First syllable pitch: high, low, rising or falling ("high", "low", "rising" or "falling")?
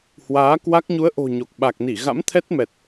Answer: rising